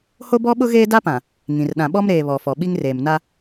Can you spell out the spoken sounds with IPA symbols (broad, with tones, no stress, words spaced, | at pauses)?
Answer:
ho˦bɔ˦ɓʊ˦ ɣeː˦da˦pã˨ | ŋĩ˨r ɗã˨ɓɔ˦mɾeː˨ βɔ˨fɔ˨ ɓi˦ŋreː˨m na˦